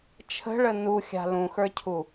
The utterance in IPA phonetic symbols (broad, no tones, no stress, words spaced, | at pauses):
t͡ʃʰə̤ɭə nuxʲa̤ lũxə˞cʰu